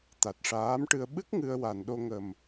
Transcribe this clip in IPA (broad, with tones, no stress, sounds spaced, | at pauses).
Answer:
t̪ a˨˩ t̚ ʂ aː˧˥ m ʈ ɨ˧ ə̯ ɓ ɨ˦˥ k̚ ŋ ɨ˧ ə̯ w a˨˩˨ n ɗ o˧ ŋ ə˨˩ m